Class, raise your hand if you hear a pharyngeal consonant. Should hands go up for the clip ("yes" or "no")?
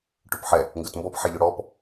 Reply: yes